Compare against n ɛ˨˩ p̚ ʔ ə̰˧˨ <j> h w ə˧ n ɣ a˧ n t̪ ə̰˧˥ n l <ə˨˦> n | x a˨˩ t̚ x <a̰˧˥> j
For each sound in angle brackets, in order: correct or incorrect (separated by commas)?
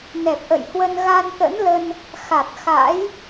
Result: correct, incorrect, correct